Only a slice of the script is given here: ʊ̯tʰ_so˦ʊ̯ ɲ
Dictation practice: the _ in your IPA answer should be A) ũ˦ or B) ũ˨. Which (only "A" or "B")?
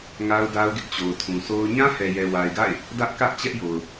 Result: B